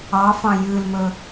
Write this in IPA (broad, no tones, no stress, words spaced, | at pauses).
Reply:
ɑfɑ̃ jʉlmɵ